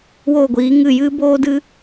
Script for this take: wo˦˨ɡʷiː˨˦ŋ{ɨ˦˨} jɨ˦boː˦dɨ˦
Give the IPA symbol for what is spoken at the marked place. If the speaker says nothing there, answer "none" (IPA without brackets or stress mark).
ɨ˦˨